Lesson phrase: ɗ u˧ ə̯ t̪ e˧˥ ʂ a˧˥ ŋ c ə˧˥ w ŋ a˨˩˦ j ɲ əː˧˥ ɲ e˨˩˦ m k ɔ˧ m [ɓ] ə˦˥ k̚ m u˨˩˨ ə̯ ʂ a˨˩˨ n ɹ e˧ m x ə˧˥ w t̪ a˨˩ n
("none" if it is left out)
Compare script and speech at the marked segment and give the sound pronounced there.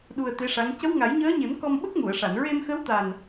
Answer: ɓ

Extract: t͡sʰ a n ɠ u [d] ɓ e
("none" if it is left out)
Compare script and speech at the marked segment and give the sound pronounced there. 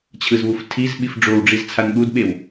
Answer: d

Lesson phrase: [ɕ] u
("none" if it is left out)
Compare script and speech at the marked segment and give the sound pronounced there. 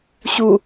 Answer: ɕ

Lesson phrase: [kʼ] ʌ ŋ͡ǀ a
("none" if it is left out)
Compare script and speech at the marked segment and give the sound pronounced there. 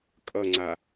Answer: kʼ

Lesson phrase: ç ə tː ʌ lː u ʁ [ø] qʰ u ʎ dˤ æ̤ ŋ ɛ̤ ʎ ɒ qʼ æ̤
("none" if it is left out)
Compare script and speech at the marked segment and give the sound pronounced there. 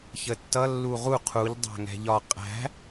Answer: u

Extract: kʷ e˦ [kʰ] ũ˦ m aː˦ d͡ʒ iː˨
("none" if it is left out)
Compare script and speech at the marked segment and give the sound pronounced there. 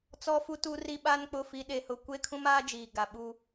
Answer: kʰ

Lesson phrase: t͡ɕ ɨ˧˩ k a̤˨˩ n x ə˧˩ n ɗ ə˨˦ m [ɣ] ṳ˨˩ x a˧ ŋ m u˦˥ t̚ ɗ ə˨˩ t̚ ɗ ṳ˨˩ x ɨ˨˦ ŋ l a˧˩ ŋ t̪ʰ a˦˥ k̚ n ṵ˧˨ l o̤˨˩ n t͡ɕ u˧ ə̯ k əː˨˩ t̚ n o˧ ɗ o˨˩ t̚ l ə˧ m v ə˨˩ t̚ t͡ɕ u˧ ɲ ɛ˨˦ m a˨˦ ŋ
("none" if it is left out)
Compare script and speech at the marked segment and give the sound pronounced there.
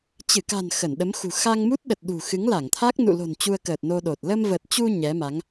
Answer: x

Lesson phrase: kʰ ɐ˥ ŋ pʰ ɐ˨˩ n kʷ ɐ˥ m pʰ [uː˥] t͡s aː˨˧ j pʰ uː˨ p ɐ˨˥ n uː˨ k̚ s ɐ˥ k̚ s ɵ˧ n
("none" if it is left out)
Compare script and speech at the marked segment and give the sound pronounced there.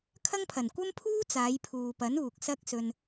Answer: uː˥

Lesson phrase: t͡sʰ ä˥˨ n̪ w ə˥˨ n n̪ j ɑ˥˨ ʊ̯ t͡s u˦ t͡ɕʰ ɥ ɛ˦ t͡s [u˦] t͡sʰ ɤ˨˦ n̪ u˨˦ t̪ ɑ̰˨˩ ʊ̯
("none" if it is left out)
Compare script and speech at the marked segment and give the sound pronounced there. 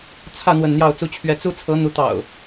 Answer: u˦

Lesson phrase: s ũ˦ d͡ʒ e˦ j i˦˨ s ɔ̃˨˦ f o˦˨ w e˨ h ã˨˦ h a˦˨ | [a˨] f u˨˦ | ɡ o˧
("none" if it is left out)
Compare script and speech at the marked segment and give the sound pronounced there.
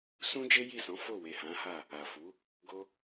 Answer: a˨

